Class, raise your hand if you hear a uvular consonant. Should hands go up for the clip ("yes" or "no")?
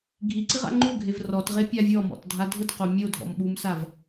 yes